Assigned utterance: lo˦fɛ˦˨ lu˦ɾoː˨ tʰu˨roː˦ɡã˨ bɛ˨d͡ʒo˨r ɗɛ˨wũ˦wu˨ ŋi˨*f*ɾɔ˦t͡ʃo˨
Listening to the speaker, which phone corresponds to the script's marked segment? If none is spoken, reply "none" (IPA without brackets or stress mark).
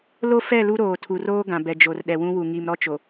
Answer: m